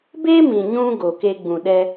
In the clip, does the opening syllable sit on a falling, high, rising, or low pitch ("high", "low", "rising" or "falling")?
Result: high